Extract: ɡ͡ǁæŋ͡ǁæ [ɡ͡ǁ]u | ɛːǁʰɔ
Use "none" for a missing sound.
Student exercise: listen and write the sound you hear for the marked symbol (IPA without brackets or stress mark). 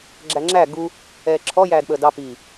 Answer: ɡ